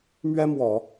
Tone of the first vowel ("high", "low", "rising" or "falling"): high